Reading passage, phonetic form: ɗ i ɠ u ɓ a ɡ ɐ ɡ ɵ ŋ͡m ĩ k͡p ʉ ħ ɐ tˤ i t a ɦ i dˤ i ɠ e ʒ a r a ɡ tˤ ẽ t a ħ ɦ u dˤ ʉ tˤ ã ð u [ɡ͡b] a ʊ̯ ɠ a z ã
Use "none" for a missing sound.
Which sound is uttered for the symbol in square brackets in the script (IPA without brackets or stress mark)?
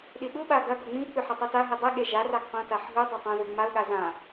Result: ŋ͡m